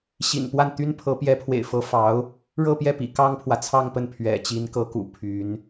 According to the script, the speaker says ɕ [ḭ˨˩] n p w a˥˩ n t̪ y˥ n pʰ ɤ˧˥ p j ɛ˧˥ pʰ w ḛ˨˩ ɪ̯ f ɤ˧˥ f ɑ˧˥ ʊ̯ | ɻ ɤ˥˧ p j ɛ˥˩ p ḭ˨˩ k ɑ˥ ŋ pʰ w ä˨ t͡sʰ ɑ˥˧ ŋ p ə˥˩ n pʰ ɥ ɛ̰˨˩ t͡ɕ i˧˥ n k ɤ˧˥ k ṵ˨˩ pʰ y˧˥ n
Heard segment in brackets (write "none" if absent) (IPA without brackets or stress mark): ḭ˨˩